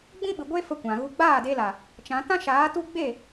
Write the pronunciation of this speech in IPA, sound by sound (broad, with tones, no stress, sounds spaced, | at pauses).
ɡ͡b ĩ˦ ɓ ɨ˨ ɡʷ e˦ f ə˧ kʷ ã˨ ɣ u˧ ɡ͡b aː˦˨ d e˧ l a˨ | t͡ʃ ã˨˦ t ã˦ ʃ aː˨˦ t u˦ ɡ͡b e˦˨